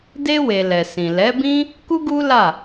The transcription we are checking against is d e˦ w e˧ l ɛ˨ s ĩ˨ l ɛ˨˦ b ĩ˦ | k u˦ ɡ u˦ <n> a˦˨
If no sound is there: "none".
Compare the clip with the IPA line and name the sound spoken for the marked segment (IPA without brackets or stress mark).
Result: l